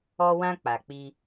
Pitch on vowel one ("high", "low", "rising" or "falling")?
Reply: high